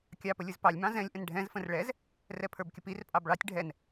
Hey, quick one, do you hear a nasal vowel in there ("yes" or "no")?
yes